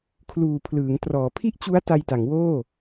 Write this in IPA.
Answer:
kʰluː˨˩pʰlɯː˩˦ŋ trɔː˩˦pʰi˥˩ʔt͡ɕu˦˥a̯ ta˧jta˩˦ŋwoː˥˩

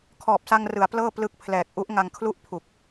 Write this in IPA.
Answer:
kʰɔː˨˩p̚sa˧ŋrɯ˩˦a̯ plɤː˥˩plɯ˦˥k̚pʰlɛː˨˩k̚ ʔu˦˥ʔŋa˧ŋkʰlu˥˩ʔ pʰu˨˩k̚

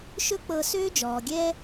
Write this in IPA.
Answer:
ʃɵ˥k͡pɤ˧ søː˥d͡ʒɔː˩ɡʲɛː˥

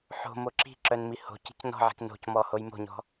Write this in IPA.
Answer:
ħo̤mo ǁi̤ǁœn miho̤ci̤c nɔ̤ʕi̤k no̤cmɔ hojmo̤ɲɔ̤

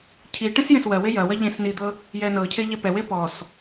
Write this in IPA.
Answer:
cʰi ʈẽsjẽswɜwe jɐ wɐʎẽsnid̪ɤ | jɛnɤcʰe ʎɛpɛwe pɔs

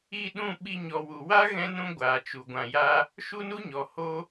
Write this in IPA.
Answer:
i˦˨ɗũ˦˨ ɓi˧ɲɔ˨wu˨ wa˦ɣɛ̃˧nũ˧ ɡʷaː˨t͡ʃu˨ɡʷã˨ja˧ | ʃu˦nu˦ɲɔ˨ ho˧

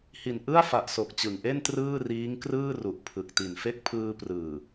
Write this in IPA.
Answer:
hi˨˩nʔɯ˥˩a̯fa˨˩ʔso˨˩k̚ t͡ɕɯ˨˩ŋʔe˥˩n trɯː˥˩riː˦˥ŋkrɯː˥˩ ru˨˩ʔpʰɯ˨˩k̚ti˨˩nfe˥˩k̚ pʰɯː˧prɯː˨˩

